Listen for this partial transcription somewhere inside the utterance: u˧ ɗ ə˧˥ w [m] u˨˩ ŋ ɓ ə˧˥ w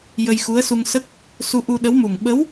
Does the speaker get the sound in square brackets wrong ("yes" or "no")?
no